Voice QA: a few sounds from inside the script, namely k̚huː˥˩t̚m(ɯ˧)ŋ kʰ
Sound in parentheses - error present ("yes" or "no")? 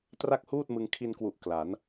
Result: no